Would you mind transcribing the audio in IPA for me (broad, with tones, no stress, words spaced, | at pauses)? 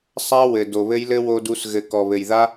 sˤa˦ wɘ˨ do˨βɘ˦jlɘ˦ wo˧du˧s ɣɘ˨ kɔ˨βɘ˨jða˦